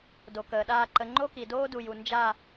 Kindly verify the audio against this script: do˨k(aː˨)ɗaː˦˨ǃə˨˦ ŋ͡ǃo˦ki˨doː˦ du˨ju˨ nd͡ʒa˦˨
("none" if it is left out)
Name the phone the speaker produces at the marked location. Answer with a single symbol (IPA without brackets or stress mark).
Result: əː˨